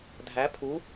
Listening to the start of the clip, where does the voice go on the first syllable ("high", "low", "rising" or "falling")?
rising